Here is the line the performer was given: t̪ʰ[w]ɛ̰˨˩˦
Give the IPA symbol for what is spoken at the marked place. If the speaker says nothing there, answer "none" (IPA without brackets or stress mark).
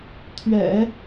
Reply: ɥ